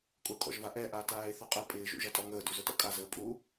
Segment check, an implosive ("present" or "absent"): absent